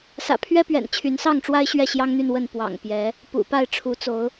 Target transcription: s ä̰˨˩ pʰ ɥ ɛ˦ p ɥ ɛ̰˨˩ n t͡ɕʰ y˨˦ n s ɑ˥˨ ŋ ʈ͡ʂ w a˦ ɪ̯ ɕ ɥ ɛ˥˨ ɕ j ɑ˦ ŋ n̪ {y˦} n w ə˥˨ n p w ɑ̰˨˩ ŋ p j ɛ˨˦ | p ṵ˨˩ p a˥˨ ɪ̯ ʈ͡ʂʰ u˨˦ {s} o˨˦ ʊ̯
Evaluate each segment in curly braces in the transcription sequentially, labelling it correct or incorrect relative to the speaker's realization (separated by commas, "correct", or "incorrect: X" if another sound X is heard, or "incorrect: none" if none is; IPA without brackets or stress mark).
incorrect: y˥˨, incorrect: t͡s